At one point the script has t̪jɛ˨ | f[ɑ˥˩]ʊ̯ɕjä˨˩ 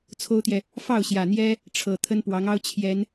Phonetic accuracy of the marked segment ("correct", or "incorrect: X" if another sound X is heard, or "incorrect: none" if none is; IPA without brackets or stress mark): correct